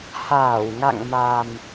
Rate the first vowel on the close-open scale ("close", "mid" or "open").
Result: open